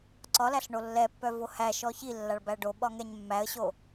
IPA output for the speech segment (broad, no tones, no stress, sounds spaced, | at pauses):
ǀ ɒ l æ ɬ ɳ o lː ɛ pː œ v o h æ ʃ ɔ ç i lː a ɭ b æ ɖ o ɓ ɒ ŋ ɛ ɲ mː æ ə̯ ɕ o